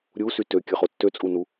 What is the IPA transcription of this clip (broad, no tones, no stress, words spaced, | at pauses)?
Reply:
ɾʲusy tøkʲəχo tːøt͡sʼunu